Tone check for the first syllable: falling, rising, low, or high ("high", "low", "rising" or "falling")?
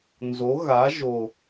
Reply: rising